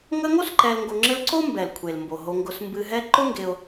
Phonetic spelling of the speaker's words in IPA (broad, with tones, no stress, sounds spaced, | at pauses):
ŋ ə˦ ŋ o˥ s ǃ ɛ˨ l ŋ ɡ o˨ ŋ͡ǁ ɘ˦ l ǀ o˥ m b ɛ˩ l kʷʰ e˩ l m b o˩ ɦ o˨ ŋ ɡ ʊ˨ s m b ɨ˨ ɦ ɛ˦ ǃ ʊ˥ ŋ ɡ e˨ ʊ̯